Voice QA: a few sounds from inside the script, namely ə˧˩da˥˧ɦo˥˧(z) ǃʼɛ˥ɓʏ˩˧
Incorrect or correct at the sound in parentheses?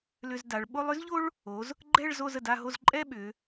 correct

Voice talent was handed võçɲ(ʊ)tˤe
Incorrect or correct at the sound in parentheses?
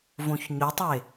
correct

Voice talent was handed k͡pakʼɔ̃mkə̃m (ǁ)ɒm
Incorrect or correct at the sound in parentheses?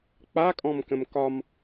incorrect: k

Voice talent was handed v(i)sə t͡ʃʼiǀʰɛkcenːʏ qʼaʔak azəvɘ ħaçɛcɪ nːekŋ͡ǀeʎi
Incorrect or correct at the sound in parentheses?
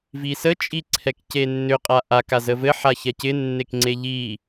correct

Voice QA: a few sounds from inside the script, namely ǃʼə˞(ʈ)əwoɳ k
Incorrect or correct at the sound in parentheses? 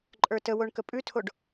incorrect: t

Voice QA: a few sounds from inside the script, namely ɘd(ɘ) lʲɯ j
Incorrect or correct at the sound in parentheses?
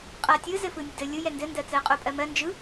correct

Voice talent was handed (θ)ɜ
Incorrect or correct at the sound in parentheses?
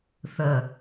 correct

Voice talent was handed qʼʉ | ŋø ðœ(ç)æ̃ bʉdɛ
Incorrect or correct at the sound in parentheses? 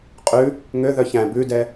correct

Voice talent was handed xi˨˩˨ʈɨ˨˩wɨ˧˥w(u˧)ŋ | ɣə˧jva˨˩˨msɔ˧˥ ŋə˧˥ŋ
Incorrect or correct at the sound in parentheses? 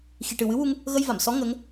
correct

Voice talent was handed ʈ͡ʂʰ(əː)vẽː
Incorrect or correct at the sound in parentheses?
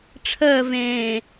correct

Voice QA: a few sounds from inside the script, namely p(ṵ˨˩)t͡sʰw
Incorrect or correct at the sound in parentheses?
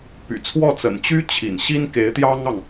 incorrect: y̰˨˩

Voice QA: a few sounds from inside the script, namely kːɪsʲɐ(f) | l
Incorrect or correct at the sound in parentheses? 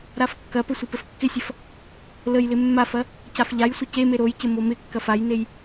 correct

